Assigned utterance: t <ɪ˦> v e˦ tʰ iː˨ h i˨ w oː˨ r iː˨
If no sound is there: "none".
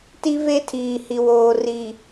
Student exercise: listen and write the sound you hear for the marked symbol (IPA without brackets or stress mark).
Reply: i˦